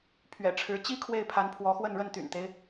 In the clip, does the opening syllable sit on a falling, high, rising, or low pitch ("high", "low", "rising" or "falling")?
low